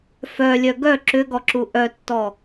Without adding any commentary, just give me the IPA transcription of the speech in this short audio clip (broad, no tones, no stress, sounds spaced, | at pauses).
f œ lʲ œ ɡ œ ǁ ʏ ɡ ɔ ǁ u ʔ œ tː ɔ